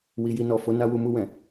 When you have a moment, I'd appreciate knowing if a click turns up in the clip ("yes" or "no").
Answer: no